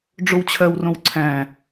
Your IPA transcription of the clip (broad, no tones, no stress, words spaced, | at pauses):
ɖ͡ʐowt͡ɕʰɜwrõw ǀʰæ̃